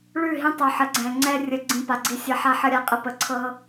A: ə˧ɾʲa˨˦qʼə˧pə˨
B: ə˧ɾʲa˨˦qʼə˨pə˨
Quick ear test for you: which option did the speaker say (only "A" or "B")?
A